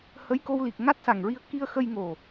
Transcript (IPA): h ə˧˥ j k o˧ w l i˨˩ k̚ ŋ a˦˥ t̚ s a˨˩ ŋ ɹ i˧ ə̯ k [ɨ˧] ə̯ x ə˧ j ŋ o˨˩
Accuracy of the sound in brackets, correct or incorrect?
incorrect